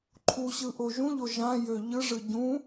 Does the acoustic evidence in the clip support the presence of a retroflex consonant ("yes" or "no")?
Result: yes